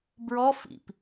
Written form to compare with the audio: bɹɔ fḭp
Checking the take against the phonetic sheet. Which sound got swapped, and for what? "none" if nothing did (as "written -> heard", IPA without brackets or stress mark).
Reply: none